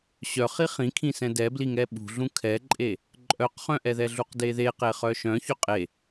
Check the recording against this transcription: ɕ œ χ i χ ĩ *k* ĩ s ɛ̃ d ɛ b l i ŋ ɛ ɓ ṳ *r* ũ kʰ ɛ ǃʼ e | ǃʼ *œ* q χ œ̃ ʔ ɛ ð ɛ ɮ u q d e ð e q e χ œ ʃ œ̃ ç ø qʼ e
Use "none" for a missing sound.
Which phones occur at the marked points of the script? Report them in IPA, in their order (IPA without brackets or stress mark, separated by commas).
kʰ, ɮ, œ